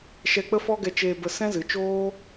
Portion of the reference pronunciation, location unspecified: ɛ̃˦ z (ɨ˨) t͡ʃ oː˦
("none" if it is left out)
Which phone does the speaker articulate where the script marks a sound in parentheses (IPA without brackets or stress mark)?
ɨ˨